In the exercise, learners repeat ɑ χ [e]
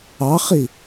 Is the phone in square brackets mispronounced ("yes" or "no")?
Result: yes